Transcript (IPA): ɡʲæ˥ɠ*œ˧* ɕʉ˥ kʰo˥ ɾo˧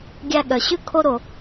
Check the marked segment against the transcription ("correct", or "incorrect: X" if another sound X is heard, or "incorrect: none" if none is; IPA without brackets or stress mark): correct